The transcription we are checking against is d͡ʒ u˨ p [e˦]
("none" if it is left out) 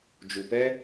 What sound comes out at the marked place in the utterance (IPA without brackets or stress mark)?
ɛ˦